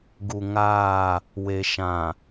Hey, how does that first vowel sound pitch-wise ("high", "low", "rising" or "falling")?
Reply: low